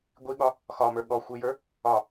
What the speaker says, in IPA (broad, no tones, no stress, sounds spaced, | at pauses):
ɡʷ i ɠ ɒ | x ɒ m ə˞ ɠ ɔ xʷ i j ə˞ | ɒ